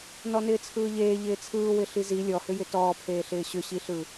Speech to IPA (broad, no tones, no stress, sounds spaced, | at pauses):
n ɔ n ɪː t͡sʰ ɯː ʎ eː ʎ ɪː t͡sʰ ɯː w ɪ ɬ i z i lʲ ɔ h ʏ j ɪ t ɔː pʰ eː ɬ ɪː ɕ ʏ ɕ i ɬ ɯ